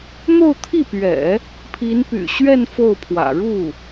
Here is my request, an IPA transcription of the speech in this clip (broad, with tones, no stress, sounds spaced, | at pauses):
n̪ o˥˧ ʊ̯ t̪ʰ i˥˩ p ɥ ɛ̰˨˩˦ | pʰ i˧˥ n p y̰˨˩ ɕ ɥ ɛ˥˧ n f o˥˩ ʊ̯ pʰ w ä̰˨˩ ɻ u˥˩